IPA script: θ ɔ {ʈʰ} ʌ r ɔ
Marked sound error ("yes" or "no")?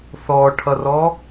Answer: no